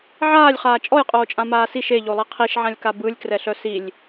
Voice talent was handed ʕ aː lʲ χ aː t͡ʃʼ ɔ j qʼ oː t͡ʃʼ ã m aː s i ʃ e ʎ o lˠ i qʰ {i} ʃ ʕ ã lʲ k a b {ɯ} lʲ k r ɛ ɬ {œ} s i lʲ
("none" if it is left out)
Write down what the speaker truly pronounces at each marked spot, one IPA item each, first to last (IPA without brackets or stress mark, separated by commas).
i, ɯ, œ